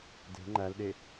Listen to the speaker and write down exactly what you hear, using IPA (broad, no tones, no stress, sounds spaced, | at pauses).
d e̤ ŋ͡ǃ æ l ɗ e